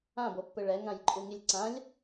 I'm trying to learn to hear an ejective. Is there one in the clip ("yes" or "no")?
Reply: yes